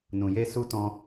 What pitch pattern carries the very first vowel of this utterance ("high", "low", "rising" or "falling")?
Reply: low